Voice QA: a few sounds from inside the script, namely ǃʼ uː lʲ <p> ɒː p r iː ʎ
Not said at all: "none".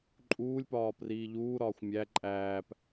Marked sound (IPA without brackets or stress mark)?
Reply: p